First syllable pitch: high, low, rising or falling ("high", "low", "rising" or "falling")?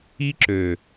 high